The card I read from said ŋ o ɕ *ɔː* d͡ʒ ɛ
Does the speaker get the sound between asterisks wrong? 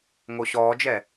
no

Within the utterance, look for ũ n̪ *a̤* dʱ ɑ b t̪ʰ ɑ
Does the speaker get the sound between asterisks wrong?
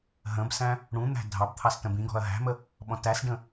yes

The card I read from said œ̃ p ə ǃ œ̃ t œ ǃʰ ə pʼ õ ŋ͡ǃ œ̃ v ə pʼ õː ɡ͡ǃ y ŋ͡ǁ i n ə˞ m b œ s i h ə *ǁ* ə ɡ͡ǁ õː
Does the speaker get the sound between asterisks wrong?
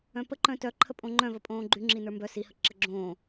no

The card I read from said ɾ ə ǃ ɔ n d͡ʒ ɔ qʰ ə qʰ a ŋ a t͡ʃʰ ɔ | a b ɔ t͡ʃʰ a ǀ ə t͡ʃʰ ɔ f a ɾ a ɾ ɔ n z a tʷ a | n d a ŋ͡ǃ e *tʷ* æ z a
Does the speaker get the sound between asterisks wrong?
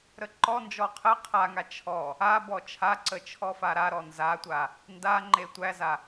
no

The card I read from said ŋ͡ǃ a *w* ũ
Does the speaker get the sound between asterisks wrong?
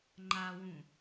no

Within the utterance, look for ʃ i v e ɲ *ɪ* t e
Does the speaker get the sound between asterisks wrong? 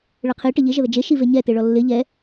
yes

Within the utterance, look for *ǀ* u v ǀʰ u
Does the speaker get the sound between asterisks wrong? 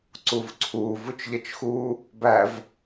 no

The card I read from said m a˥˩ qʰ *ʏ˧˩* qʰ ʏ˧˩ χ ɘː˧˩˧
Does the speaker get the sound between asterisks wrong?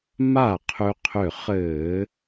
yes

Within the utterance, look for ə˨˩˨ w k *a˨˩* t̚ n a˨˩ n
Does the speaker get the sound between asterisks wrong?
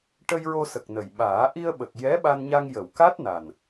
yes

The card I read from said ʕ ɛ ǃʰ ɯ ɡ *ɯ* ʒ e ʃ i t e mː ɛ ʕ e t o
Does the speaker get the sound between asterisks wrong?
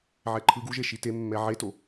yes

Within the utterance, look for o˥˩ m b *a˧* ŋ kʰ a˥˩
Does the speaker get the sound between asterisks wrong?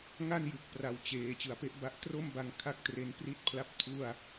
no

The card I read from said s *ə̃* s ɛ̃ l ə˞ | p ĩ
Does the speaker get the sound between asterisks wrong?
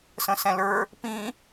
no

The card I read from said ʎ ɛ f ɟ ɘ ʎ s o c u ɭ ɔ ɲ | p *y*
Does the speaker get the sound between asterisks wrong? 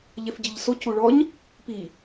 yes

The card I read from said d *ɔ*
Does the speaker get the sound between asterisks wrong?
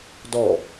no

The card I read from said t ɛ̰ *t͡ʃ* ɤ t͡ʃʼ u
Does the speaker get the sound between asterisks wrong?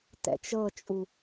no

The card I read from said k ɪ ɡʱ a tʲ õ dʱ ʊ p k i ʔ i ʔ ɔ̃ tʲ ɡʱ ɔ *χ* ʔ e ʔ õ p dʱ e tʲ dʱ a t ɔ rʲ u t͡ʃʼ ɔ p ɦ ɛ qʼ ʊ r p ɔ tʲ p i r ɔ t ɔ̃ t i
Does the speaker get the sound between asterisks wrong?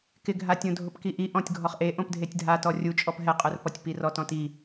no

